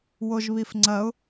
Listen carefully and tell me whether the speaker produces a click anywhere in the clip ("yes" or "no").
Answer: yes